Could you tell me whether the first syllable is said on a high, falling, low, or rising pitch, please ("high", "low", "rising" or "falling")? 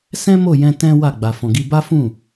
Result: high